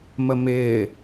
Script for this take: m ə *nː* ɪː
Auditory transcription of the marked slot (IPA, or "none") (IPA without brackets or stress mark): m